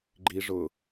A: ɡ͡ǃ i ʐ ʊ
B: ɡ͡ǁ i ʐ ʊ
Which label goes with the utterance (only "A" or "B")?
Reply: A